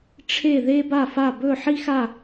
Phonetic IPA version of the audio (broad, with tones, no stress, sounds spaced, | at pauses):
ʈ͡ʂʰ e˥˧ ð e˥ b a˥˧ f a˥˧ b ɵ˥˧ ħ i˥ x a˥˧